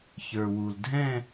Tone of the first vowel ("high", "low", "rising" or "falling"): low